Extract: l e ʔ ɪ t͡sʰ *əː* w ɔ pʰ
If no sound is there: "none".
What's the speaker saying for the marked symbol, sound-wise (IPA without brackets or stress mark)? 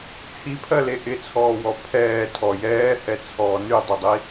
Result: ɔː